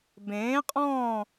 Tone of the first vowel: rising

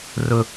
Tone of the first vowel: high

